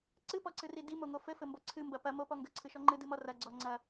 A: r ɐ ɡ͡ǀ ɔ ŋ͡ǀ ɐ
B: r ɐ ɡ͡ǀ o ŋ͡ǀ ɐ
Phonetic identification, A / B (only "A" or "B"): A